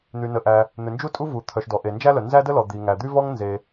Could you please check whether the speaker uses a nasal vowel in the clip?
no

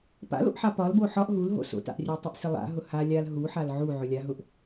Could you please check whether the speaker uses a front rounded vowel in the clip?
yes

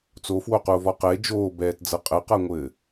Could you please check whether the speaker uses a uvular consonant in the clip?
yes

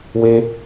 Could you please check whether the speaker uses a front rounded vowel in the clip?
no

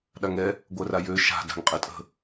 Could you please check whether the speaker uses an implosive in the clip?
yes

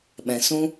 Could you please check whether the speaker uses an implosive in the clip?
yes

